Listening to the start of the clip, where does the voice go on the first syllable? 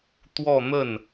falling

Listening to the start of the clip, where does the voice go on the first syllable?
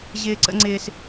high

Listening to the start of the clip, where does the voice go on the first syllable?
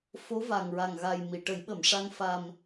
rising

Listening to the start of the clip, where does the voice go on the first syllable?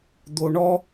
low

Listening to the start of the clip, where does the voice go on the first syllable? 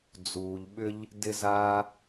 low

